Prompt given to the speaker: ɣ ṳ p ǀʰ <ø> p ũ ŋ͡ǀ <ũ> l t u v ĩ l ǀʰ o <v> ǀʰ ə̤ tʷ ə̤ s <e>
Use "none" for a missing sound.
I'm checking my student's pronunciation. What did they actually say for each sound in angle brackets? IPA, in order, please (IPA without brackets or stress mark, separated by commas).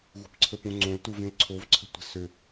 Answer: ə, õ, v, ø